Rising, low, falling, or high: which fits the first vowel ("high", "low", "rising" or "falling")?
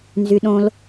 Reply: high